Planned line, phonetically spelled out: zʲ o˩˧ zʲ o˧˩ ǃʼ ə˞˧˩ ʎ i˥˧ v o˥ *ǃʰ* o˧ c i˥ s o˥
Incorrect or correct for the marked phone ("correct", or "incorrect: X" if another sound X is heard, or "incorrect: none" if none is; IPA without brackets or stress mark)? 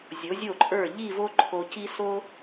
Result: correct